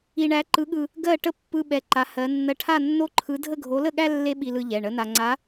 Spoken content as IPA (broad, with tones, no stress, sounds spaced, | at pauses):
i˧ ɳ æ˧˥ ǃ ɯ˧˥ ɠ ɯ˧ | ɡ ɜ˥˧ ʈ ə˥ pː ɯ˥ ɓ ɛ˧˥ ǃ a˧˥ h ɜ˧˥ nː ɜ˧ ʈʰ a˥˧ nː o˥ ǃʰ ɯ˧˥ dʱ ə˥˧ ɡʱ o˧˥ l ə˥˧ ɠ æ˥ lː e˥ ɓ i˧ l ɯ˧ ʎ ɛ˩˧˩ ɳ ə˧˥ n a˧ ŋ͡ǀ a˧˥